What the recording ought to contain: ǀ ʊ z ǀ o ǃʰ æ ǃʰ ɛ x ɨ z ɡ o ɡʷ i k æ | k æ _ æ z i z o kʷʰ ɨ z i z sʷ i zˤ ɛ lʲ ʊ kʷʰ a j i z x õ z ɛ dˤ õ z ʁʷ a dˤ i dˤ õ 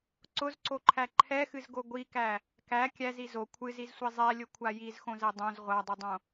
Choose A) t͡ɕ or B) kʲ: B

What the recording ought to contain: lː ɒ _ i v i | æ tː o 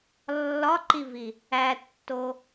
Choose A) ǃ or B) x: A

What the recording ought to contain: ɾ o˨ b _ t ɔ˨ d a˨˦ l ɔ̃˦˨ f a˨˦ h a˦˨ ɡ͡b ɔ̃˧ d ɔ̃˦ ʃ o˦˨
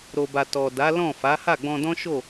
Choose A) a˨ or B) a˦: A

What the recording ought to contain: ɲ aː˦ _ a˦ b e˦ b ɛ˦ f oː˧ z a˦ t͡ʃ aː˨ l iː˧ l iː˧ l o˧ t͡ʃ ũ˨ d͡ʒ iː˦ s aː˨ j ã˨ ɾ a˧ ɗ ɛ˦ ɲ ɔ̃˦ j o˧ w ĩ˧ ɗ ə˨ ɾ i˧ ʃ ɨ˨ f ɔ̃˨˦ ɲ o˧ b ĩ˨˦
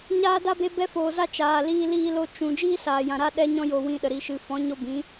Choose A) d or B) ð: A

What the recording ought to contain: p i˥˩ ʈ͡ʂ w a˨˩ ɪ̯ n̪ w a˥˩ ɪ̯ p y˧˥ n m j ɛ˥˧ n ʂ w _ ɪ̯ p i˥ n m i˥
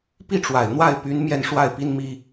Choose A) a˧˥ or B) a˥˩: B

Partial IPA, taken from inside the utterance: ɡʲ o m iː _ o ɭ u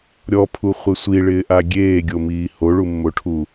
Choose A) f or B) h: B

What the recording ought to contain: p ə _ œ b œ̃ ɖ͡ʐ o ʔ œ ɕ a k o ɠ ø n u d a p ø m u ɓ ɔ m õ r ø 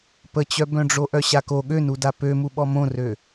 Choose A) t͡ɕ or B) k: A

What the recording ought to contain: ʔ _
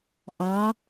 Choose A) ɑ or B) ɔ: A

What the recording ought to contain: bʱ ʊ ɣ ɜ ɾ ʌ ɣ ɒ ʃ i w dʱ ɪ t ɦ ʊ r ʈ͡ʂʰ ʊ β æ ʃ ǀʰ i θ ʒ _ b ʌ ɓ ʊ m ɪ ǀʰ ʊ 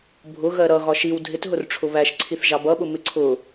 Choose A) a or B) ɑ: B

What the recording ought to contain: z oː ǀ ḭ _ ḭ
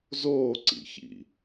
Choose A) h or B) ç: B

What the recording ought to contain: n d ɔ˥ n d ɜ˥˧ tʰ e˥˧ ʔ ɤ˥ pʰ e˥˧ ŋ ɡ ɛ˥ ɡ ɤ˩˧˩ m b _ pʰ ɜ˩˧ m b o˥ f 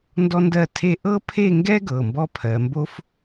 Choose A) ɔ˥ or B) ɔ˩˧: A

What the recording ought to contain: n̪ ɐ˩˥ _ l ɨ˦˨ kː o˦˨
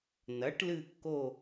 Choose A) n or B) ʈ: B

